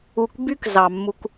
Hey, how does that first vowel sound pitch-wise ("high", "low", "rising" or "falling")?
low